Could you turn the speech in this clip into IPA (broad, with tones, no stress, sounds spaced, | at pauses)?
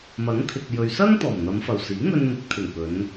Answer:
m ɐ˨˥ ŋ t̪ʰ ɪ˨ k̚ j ɵ˨ ɥ s ɐ˥ ŋ t̪ ɔː˨˩ m n̪ ɐ˨˧ m f ɐ˨˩ w s iː˨˥ ŋ ɵ˧ n m ɪ˨˥ k̚ t̪ʰ ɪ˨˩ ŋ p ɵ˨˧ n